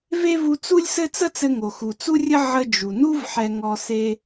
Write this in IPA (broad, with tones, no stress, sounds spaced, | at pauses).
v e˥ v u˧ t͡s u˥ lʲ s ɘ˥ t͡s ə˥ t͡s ɘ˧ ŋ o˩ x u˩ t͡s u˥ rʲ ə˥ ʕ ə˧ d͡ʒ u˩ n u˥ v ħ ɛ˧ ŋ ɔ˧ s e˧